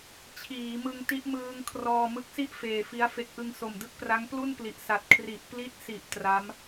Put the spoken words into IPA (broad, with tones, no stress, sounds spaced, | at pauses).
t͡ɕʰ iː˩˦ m ɯ˧ ŋ t i˦˥ ʔ m ɯː˧ ŋ kʰ r ɔː˧ m ɯ˦˥ k̚ s i˥˩ ʔ f eː˨˩ f i˦˥ a̯ f e˦˥ k̚ ʔ ɯ˧ ŋ s o˨˩ m d ɯ˦˥ k̚ p r a˦˥ ŋ p l u˥˩ n p l i˨˩ ʔ s a˨˩ t̚ kʰ r i˨˩ ʔ p l i˦˥ t̚ s i˨˩ ʔ t r a˦˥ m